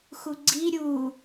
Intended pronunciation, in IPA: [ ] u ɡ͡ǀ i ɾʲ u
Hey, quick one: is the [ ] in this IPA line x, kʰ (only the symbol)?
x